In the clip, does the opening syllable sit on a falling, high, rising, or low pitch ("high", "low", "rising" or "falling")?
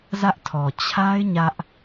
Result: high